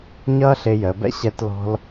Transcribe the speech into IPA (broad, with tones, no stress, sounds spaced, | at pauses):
ɲ ʌː˥ ɬ ɪː˧ j əː˩˧ b ɛ̰˥ ɕ ɛ˧ t l ɔ̤˧ l